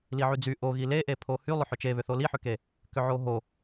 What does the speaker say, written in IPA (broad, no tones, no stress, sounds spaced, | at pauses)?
l i ʕ y d͡z y ʔ o ɣ i l e ʔ e pʰ o h y lˠ ʏ ħ ʏ t͡ʃ e β ʏ θ o l i ħ ʏ k e | k ʏ ʕ o ɦ o